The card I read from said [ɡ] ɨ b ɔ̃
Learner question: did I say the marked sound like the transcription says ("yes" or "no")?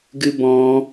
yes